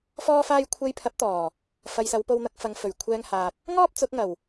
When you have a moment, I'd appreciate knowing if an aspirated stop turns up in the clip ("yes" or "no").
yes